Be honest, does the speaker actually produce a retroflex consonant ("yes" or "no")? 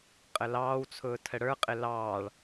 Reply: yes